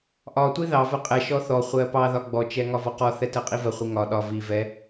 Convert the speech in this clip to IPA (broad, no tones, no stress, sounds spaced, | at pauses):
ʔ ɒ tʷ i ð ɑ v ɜ qʼ ɛ ʃ ɔ θ ɔ χʷ ɜ p ɑ ð ɒ ɡ͡b ɔ t͡ʃ ɛ ŋ ɒ v ɒ q ɔ θ ɛ t ɜ qʼ i v ɜ χʷ i ŋ ɒ ɗ ɒ v i v ɛ